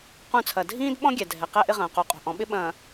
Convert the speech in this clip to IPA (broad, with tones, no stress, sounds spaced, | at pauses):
q ũ˦˨ t͡sʰ ɐ˨ dʱ ĩː˦ d ɓ ɔ̃˦ ɡʲ ɛ˨ dʱ ɛ˨ q ɛ˦ ʔ ɪ˦ ʁ ɐ̃ː˨ q o˨˦ qʼ o̤˨ ʔ ɔ̃˨˦ ɓ ɪ˦ ɓ ɐ̃ː˨